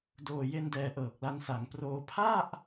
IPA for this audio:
d oː˨˩ j e˧ n d ɛː˨˩ ʔ ɤː˨˩ k̚ l a˧ n s a˩˦ ŋ p r oː˧ pʰ a˥˩ ʔ

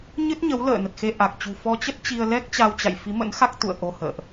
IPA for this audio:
ɲ ɨ˦˥ t̚ ɲ ə˨˦ w l ə̰ː˧˨ n ə˨˩ t̚ x e˧ ʔ a˨˩ k̚ t͡ɕ ṳ˨˩ f ɔ˧ t͡ɕ ə˦˥ t̚ t͡ɕ i˧ ə̯ l ɛ˦˥ k̚ t͡ɕ a˧ w t͡ɕ a̰˧˨ j f i˨˦ m ə̰˧˥ n x a˦˥ k̚ t̪ ṵ˧˨ ə̯ ʔ o˧ h ə̰ː˧˨ ʔ

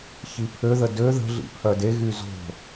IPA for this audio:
ç i pʰ ø ð ə d ø ð ə̤ ɮ ḭ pʰ œ d e ɣ y z o̤

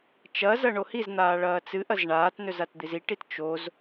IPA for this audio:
t͡ʃ ɐ z ɐ ɳ o h i z n̪ aː ɭ ɐː t͡s ɨ ʔ ɐ z ɳ aː t n ɵ z a t d̪ i z i ʈ i t t͡ʃ o z

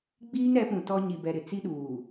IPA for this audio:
ɡ͡b iː˦ ŋ ɾ ɛ˨˦ p ũ˨ t ɔ˦ ɲ i˨ b ɛ˨ ɾ ɪ˨ t͡s i˦ ɗ uː˨

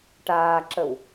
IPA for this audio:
ʈ aː ǁ ə w

